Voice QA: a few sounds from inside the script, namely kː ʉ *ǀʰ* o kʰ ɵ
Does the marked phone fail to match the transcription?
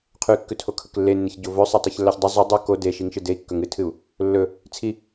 yes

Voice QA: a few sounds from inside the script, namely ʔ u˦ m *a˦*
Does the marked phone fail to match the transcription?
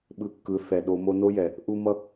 yes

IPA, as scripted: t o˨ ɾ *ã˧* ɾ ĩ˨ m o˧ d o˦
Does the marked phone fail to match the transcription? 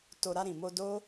yes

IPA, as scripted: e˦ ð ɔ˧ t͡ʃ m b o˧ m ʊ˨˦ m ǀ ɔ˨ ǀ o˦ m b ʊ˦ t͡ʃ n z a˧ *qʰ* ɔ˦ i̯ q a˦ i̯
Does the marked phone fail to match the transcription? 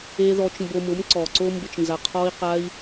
no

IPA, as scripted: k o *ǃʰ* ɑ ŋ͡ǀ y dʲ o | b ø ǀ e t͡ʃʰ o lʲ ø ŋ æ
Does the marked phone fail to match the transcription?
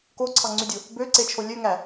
yes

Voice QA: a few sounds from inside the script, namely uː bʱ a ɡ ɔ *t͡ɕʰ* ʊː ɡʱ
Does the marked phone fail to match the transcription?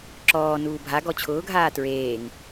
no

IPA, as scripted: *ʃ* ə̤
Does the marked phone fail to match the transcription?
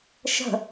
no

